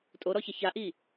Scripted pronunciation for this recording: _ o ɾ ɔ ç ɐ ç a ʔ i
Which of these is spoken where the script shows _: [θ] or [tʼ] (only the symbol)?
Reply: tʼ